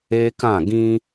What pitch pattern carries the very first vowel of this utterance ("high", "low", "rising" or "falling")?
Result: high